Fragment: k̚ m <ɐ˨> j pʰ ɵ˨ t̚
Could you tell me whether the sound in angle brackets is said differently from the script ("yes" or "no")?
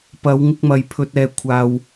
no